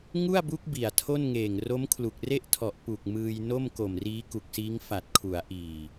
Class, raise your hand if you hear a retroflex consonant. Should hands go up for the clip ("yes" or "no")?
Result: no